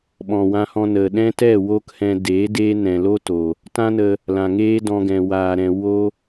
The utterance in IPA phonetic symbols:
ɓ ɔ̃˨ w ã˧ h ɔ̃˧ n ə˨ ɗ ɛ̃˦ t ɛ˦˨ w oː˦ k h ɛ̃˧ d eː˨˦ d eː˦ n ɛ̃˨ l o˦ t oː˨ | t ã˦ n ə˧ | l ã˨ ŋ eː˦ d ɔ̃˧ ɡ ɛ̃˨ w aː˨ ɾ ɛ̃˨ w o˦

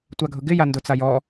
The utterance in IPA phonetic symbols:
tʷ a ɡʱ ʊ ɡ ɪ j a n d ʊ t͡s a j ɔ

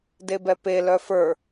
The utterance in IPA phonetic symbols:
d e b ɛ p e l œ f ə˞

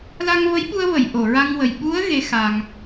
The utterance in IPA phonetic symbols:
l a˧ ŋ v ə˧˥ j ɓ u˧ ə̯ v ə˨˩˨ j ʔ o˨˩˨ ɹ a˧ ŋ w ə˨˩ j ɓ u˧˥ ə̯ ɣ e˧˥ x a˧ ŋ

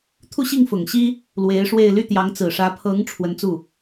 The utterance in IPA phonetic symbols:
t̪ʰ u˥˧ ɕ i˥˩ ŋ f ʊ˨˩ ŋ ɕ i˥ | l w e˧˥ ɪ̯ ʂ w e˥˧ ɪ̯ l y˥˩ t̪ j ɑ˧˥ ŋ t͡s ɹ̩˨˩ ʂ ä˧˥ pʰ ɤ˧˥ ŋ ʈ͡ʂʰ w ə˧˥ n t͡s u˥˩

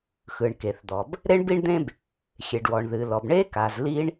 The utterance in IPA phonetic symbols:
x ɯ˩ ɳ k e˩ θ d̪ ɔ˩ b | ɾ e˥ ɳ b i˥ ɳ d̪ ẽ˥ b | xʲ e˩ ɖ w ɔ˩ ɳ ð ɨ˩ l ɔ˩ b ɳ e˥ k a˩ z l i˥ ɳ

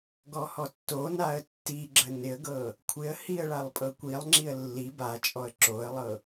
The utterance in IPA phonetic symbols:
ɡ ɔ h ɔ tː o n a ə̯ tː i ɡ͡ǁ ə n ɪ ə̯ ɡ ɤ | kʷʰ ɪ ə̯ h i ə̯ ɭ a lˠ pʼ ɤ kʷ i lˠ ŋ͡ǁ i ə̯ lː i b a t͡ʃʼ ɔ ə̯ ǁ o ə̯ lˠ ɤ

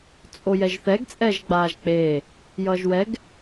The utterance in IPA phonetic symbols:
t͡sʼ o j ɛ ʒ θ ɛ ɡ t͡sʼ ɛː ʒ ɡ͡b aː ʒ k͡p eː | j ʌː ʒ w ɛ ɡ

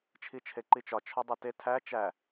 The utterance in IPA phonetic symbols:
t͡ʃʰ i t͡ʃʰ e ǃ i t͡ʃ ɒ t͡ʃʰ ɒ dˤ e t e tʰ æ t͡ʃ æ

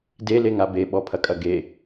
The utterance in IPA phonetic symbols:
d e l e ŋ a b e ɓ ɔ pʰ ɐ kʼ ɐ ɡ e

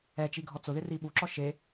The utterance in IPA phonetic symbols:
ɛ t͡ʃ i ɡʱ ɔ t͡s ʊ ð ɪ r i ɓ u ǁ ɔ ʃ e

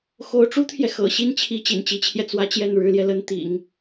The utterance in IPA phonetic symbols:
x o˧˥ ʊ̯ ʈ͡ʂ u˥ t̪ʰ j ɛ˨ x ɤ̰˨˩ ɕ i˥˩ n t͡ɕʰ i˧˥ t͡ɕ ḭ˨˩ n t͡ɕ i˧˥ t͡ɕʰ j ɛ˧ t͡s w ä˥˧ t͡ɕ j ɛ˥˩ n ɻ ɻ̩˧˥ l j ɛ˧ l ə˥ n t̪ ḭ˨˩˦ ŋ

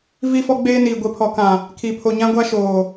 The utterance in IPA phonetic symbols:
v i˦ f ɔ˦ ɡ͡b eː˦ n iː˨ ɡʷ e˨ pʰ ɔ˨ k ã˨ | kʰ i˨ pʰ o˨ ɲ ã˦ ɡʷ a˦ ʃ oː˨

